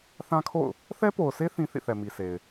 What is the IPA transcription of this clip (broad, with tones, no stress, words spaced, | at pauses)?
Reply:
θã˦kʰo̰˦˨ʊ̯ | θɛ˦po˨ʊ̯se˦ θĩ˦ θḭ˦˨θɛ˨ mi˨sʰe˨ɪ̯